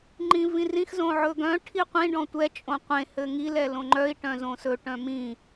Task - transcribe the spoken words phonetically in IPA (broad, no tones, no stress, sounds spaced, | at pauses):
ŋ͡ǃ ĩ v ĩ r ĩ x z õ ʕ ɵ ɡ œ̃ ʈʰ i qʷ ĩ ɖ ɔ̃ tʷ ɛ t͡ʃʼ õ qʷ ẽ h ɘ ŋ i l ɛ l õ ŋ͡ǃ œ i̯ ʈ œ̃ z õ s ɵ ʈ œ̃ m ĩ